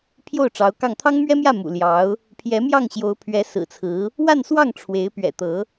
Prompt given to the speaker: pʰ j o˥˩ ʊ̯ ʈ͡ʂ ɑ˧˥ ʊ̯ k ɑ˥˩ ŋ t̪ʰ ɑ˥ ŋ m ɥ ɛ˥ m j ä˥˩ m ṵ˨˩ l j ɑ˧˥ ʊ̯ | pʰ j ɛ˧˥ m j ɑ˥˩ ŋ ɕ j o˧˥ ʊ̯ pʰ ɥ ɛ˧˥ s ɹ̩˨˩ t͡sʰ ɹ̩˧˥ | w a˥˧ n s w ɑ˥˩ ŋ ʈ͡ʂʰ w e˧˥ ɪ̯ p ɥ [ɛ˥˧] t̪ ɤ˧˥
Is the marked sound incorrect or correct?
incorrect